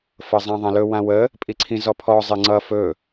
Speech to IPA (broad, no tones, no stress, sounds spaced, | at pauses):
f ɤ zˤ ã ðˤ ã l ɵ w ã w ə | pʼ i ǀʰ ĩ z ɔ pʰ ɔ zˤ ɪ ŋ͡ǀ ʌ f ɵ